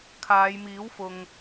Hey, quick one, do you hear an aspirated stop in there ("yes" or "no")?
yes